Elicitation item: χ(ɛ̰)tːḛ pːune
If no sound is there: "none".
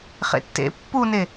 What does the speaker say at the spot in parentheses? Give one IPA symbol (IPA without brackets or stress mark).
ḛ